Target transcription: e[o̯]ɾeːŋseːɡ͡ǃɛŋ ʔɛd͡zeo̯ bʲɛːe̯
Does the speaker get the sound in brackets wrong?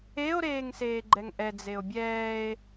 no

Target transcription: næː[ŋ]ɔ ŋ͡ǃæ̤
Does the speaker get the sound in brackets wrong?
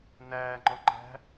yes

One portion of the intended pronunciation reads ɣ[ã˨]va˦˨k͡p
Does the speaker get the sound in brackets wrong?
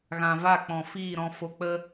no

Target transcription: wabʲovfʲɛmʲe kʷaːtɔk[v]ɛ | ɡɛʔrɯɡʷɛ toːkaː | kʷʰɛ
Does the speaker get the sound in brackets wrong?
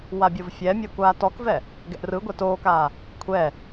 no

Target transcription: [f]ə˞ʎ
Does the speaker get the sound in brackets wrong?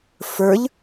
no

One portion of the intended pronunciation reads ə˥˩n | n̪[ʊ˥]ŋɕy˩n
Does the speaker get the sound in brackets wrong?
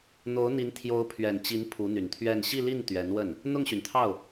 yes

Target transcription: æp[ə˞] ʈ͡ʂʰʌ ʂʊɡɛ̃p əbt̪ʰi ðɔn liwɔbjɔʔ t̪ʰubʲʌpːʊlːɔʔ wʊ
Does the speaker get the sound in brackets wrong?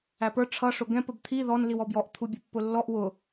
no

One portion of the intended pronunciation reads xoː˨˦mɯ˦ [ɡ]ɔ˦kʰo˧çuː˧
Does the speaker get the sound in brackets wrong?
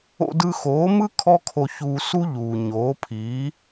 yes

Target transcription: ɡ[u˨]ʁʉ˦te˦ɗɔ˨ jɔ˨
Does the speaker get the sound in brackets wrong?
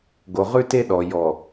yes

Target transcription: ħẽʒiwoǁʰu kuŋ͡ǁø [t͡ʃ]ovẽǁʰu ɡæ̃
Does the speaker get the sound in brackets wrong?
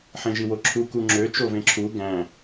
no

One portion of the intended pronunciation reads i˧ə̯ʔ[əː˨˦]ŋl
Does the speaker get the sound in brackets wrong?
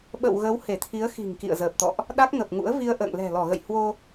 yes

